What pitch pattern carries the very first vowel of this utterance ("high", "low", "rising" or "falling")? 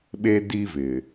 high